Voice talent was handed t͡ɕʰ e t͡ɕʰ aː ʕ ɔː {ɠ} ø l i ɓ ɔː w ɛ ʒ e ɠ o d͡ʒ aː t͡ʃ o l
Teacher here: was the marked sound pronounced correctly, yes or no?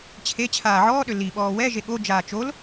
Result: no